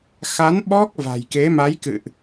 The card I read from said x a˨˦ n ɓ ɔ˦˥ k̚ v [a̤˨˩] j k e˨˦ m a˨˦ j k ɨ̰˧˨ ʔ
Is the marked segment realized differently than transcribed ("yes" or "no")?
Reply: no